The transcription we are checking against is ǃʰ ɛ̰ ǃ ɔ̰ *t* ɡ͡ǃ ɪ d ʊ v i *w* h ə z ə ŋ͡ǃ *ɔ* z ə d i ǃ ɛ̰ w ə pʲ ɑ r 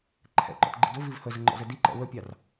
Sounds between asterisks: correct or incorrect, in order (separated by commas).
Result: correct, incorrect, incorrect